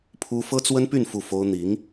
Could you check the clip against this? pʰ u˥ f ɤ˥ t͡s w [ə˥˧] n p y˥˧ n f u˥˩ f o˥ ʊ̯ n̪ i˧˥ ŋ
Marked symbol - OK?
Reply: no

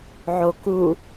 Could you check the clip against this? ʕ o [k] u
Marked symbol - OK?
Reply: yes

